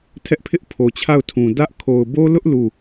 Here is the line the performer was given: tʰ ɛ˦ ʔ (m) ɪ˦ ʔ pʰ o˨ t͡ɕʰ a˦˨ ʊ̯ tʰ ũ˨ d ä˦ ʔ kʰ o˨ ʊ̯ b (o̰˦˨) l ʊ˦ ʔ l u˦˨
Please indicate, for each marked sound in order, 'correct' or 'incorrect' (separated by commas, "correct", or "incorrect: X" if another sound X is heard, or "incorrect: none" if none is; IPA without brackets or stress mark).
incorrect: pʰ, incorrect: o˦